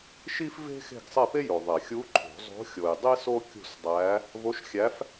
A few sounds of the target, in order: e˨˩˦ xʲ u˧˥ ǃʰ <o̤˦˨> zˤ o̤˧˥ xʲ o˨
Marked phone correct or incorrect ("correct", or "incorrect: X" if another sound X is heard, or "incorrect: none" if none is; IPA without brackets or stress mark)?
incorrect: o̤˨˩˦